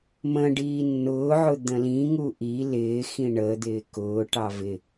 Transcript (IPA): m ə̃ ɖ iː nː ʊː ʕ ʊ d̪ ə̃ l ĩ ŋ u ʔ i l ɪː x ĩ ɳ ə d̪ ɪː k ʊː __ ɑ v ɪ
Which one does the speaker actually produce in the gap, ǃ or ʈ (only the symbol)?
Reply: ʈ